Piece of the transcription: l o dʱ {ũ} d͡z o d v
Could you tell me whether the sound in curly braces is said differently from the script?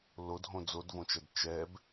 yes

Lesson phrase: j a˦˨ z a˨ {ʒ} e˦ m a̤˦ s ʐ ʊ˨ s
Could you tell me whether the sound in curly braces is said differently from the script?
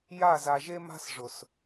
no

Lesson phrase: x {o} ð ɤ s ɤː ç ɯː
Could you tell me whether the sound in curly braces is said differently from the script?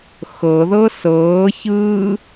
yes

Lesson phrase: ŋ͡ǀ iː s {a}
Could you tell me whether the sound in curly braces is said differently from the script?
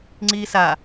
no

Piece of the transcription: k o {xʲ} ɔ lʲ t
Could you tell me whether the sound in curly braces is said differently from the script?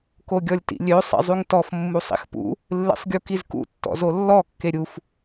yes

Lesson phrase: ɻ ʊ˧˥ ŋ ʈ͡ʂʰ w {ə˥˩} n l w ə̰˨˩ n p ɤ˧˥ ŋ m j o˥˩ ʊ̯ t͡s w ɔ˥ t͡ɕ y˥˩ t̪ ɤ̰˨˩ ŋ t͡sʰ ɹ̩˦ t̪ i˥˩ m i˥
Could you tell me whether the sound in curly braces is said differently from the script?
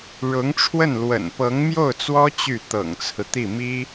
no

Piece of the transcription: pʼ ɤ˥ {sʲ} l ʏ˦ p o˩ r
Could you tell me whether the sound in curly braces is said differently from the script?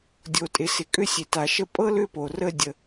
yes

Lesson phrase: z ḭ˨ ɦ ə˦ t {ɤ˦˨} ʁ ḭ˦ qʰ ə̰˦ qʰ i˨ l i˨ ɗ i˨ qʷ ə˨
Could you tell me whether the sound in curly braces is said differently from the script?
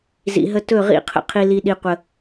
yes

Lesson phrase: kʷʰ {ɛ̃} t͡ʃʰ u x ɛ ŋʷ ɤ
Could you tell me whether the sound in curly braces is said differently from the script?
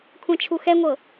no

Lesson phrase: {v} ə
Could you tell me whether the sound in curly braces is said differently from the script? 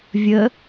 yes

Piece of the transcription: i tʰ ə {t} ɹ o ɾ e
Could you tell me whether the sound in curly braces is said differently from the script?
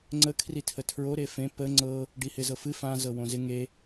yes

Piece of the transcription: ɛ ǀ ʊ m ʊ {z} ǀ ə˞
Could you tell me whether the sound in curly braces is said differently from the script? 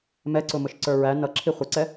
yes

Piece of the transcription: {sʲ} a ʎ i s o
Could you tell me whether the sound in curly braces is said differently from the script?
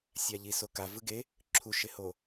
no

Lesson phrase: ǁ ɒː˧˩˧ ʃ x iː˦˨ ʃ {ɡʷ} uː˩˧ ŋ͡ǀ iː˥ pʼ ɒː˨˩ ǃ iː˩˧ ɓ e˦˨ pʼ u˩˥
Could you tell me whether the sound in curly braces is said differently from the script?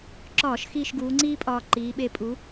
yes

